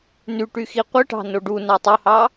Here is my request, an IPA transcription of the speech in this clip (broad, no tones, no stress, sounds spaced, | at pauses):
n y ʈ y x i qʷ ɯ ʈ ɑ̤ n o ɖ u n ɑ tˤ o h ɑ